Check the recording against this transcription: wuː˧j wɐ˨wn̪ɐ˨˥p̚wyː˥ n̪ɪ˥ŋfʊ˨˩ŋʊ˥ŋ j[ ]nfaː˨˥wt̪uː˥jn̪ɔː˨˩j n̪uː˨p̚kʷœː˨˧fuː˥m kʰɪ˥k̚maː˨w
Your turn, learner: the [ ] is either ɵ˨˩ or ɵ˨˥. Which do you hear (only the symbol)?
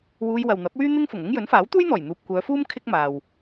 ɵ˨˥